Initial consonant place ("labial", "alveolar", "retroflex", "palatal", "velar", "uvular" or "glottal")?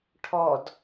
retroflex